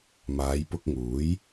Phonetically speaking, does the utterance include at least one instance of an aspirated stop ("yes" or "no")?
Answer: no